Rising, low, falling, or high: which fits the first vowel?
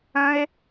high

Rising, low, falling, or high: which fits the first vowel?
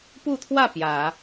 falling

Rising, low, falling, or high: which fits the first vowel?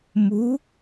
rising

